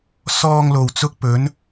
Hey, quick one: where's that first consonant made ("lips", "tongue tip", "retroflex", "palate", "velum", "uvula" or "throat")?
tongue tip